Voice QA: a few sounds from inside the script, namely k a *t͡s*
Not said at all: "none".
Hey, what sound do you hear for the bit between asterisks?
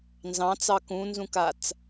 t͡s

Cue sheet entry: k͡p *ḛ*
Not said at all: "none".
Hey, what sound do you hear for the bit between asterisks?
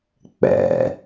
ɛ̰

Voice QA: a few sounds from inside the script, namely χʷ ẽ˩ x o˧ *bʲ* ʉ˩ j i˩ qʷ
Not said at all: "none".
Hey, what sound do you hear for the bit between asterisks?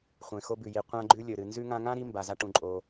b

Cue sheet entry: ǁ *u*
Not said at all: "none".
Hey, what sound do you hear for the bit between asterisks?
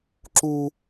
u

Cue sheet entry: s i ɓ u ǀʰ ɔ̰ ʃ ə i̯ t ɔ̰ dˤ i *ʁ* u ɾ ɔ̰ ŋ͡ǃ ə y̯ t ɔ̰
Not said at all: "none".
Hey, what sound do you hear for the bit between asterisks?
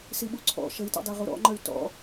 ʁ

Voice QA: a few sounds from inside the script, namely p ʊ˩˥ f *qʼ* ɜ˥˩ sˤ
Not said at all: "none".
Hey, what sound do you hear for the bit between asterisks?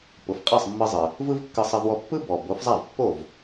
qʼ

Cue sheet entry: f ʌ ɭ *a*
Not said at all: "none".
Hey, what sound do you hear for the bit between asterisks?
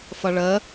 ə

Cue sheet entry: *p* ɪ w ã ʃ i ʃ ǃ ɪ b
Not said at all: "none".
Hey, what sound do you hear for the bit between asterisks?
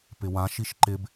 p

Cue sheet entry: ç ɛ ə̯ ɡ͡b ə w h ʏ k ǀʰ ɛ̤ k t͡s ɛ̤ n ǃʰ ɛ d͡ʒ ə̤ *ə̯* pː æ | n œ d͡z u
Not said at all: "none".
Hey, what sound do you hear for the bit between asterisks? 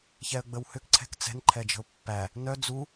ʊ̯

